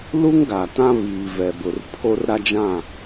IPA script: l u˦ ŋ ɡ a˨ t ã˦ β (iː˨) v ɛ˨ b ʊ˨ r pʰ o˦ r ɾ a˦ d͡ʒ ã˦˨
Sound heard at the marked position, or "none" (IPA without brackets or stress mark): iː˨